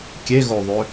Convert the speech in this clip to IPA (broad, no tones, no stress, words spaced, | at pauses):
kʲeɣoðˤø